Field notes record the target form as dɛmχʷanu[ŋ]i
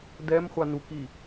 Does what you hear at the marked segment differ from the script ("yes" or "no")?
yes